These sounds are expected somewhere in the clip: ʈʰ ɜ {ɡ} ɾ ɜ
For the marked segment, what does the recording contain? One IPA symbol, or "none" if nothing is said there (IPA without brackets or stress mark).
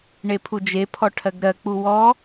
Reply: ɡ